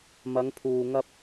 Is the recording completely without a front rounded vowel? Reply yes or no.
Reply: yes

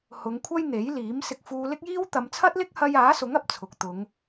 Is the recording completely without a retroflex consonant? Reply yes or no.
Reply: yes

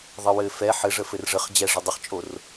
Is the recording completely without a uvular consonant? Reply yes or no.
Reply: no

